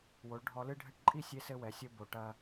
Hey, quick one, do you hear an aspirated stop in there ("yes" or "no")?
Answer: no